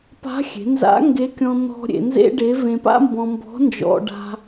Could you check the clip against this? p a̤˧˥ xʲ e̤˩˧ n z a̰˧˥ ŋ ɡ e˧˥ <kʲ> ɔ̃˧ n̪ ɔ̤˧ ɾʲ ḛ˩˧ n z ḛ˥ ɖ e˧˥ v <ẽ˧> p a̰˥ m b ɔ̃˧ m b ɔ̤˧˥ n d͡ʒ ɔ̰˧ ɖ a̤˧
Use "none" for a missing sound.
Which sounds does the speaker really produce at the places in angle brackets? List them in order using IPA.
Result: kʲ, ẽ˧

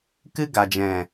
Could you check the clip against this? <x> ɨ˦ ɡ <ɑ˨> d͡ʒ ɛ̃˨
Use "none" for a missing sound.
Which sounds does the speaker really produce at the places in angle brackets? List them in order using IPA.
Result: k, a˨

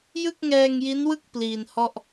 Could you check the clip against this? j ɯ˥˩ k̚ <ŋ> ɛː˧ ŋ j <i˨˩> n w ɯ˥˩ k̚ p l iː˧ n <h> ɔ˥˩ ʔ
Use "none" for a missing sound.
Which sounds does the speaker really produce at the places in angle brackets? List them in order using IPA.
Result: ŋ, i˦˥, h

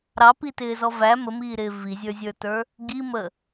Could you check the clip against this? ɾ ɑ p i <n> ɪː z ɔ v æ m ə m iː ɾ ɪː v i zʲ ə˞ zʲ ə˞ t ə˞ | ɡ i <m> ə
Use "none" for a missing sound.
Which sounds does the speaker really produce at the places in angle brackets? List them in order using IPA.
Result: t, m

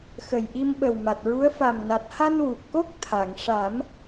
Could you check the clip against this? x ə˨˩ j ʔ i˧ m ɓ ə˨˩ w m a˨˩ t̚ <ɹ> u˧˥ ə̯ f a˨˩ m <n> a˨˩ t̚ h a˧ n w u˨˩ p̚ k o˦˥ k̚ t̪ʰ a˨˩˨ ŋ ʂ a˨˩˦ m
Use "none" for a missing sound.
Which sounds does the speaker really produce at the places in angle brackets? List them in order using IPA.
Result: ɹ, n

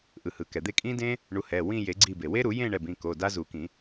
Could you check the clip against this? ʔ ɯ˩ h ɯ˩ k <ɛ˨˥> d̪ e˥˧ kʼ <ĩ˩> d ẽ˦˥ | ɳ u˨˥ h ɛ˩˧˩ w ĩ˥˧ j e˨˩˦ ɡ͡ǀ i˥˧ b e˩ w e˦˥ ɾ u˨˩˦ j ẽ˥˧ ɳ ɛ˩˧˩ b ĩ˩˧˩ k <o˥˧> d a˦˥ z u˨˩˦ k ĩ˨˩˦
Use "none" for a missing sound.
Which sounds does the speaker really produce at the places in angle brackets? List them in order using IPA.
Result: ɛ˩, ĩ˦˥, o˩˧˩

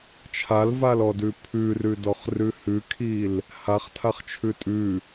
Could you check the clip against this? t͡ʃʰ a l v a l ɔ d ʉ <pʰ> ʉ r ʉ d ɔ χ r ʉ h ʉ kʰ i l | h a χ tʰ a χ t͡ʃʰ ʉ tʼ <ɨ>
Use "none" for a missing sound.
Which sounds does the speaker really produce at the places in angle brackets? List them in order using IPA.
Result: pʰ, ʉ

